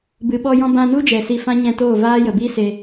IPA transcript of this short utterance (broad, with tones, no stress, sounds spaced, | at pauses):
b ɨ˨ ɓ ɔ˧ j ɔ̃˧ b ã˧ n u˦ d͡ʒ ɛ˨ s i˧ f ã˦ ɲ ɛ̃˧ t oː˦˨ v aː˦ j ə˨ b i˦ s e˧